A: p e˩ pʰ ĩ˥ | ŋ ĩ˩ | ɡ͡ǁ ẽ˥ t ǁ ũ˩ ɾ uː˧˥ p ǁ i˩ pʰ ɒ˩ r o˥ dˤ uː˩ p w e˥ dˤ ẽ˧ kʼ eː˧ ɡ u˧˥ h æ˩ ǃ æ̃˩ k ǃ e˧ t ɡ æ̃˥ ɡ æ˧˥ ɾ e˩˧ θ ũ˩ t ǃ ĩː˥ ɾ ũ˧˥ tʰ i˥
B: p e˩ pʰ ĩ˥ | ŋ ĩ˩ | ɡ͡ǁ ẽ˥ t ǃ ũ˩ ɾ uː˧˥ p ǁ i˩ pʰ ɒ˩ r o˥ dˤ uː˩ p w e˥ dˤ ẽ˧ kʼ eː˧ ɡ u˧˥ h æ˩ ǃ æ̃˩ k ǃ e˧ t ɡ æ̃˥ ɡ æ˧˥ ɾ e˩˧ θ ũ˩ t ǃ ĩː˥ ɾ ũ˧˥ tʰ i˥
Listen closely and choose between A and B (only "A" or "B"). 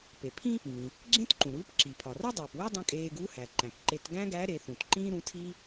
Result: B